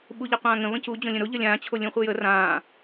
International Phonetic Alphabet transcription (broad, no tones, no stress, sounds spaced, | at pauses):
ɓ u ʎ a qʷ ãː ŋ ə̃ β ə̃ c u d͡ʑ õ lʲ ə̃ ɾ o ʎ ə lʲ ãː t͡ɕʰ o lʲ ũ χʷ ɨ j ə r ãː